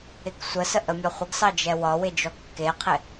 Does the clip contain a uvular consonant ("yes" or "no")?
yes